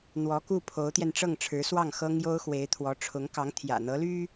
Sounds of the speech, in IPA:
n̪ w ɔ˧˥ k u˥˩ pʰ o˧˥ ʊ̯ t̪ j ɛ˧ n ʈ͡ʂ ɤ˥˩ ŋ ʈ͡ʂʰ ɻ̩˧˥ s w ɑ˥˩ ŋ x ɤ˥ ŋ j o˥ ʊ̯ x w e˧˥ ɪ̯ t̪ʰ w ɔ˧˥ ʈ͡ʂʰ ʊ˧˥ ŋ k ɑ˧˥ ŋ t̪ʰ j ä̰˨˩ n̪ ɤ˧˥ l y˥

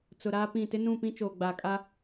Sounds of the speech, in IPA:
t͡s ʊ˨ ɾ aː˦ p ĩ˦˨ t ɪ˦ n ũ˦˨ p ĩ˦ t͡ʃ oː˨ ɡ͡b aː˨ kʼ a˦

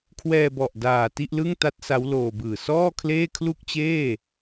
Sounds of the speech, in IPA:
kʰ w ɛː˧ b ɔ˨˩ ʔ d aː˨˩ t i˥˩ ʔ l ɯ˥˩ ŋ t a˦˥ t̚ s a˦˥ w l oː˧ b ɯː˨˩ s ɔː˥˩ kʰ l eː˥˩ kʰ l u˥˩ k̚ t͡ɕ eː˥˩

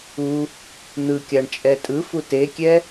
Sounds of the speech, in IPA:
u | n̪ ɯ kʲ a ɳ t͡ʃʼ ɛ tʼ ɯ f u t e kʲ ɛ

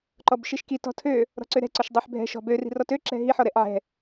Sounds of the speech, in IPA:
ǃ ɔ b ʃ i ʃ k i t ɔ̤ tʰ ø | ɾ ɔ̤ ǀ ø ɾ ɛ̤ ǀ ɔ ʃ dˤ ø ħ bʱ ɛ̤ ʃ ɔ̤ b ø r i̤ r ɔ t ø ǁ ɛ̤ ɦ i ħ ɔ ɾ ɛ ʔ ʕ ɛ̤

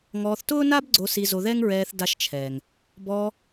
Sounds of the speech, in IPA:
ŋ ɔː˧ θ t ʊː˥ n aː˥ b ɡ͡ǀ o˧ s i˧ z o˧ ð ɛ˥ ŋ ɹ ɛː˧ θ d a˧ ʃ t͡ʃʰ ɛː˩ ŋ | b ɔː˧

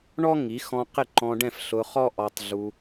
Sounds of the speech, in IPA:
ɳ ɔ˥ ŋ i˩˥ x ɔ̃˧ q ɪ˥˩ ǃ ɔ̃˧ ɖ ɛ̃˥˩ f ɬ ʊ˧ χ ɔ˥ ʔ ɔ˧ tˤ ɮ u˧

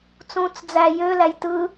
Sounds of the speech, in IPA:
t͡s ũ t͡s d͡z æ j ø l æ j t ɯ

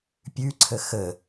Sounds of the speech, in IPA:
pʲ ʉ ǀʰ ə x ə

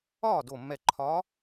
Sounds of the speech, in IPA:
ɒː˥˨ d o˧˩ mː ɛ˧˩ ǃʰ ɒː˧˥

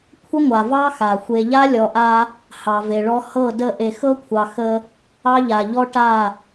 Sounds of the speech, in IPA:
kʷʰ ə˦ ŋʷ a˨ v ɑ˦ x a˨ xʷ e˨ ʎ a˦ lʲ ɔ˨ ʔ a˦ | h ɑ˨ v e˨ ɭ ɔ˦ h ɤ˦˨ d ə˦˨ ʔ e˨ x ɤ˦ kʷʰ ɑ˨ x ə˦ | ɑ˦ ʎ a˨ ʎ ɔ˦ ʈ a˦˨

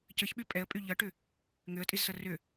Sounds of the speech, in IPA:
c ə ç ɓ y pʼ ɛ ə̯ pʼ y ʎ ʌ ʈ ʏ | ŋ ʏ ə̯ tʼ i z s ʌ r ʏ

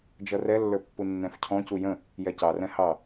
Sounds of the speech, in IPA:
d͡ʒ ʌ r ɛ lː ə˞ pː u nː ɛ̃ f cʰ ɔ̃ c u j ə̃ | j ɛ c ɑ r ɛ̃ h ɑ

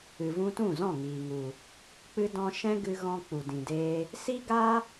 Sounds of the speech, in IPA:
ɨ˨ v ũ˧ t ũ˦˨ z ɔ̃˦˨ ŋ iː˨ ŋ u˨ | k͡p ɨ˦ d ɔ̃˦ ʃ ɛ̃˦ ɡ ɨ˧ ɣ ɔ̃˧ k͡p u˨ d ĩ˨ d eː˧ | s i˦ ɡ a˦

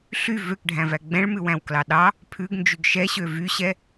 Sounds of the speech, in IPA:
ɬ y v ø k ɖʱ æ̃ v æ ɡ͡b ɛ̃ ɭ m ʉ w æ̃ w k l ɑ ɗ ɑ | pʰ ʉ ɡ n d͡ʒ y ɡ ʃ ɛ ɕ ø v y ɕ ɛ

